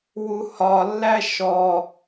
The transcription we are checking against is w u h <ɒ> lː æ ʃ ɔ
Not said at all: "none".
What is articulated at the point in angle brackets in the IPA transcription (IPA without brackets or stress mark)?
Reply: ɒ